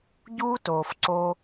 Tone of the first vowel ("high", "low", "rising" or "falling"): high